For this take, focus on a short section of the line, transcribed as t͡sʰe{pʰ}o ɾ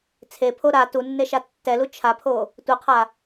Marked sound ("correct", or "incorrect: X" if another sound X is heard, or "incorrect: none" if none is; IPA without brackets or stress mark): correct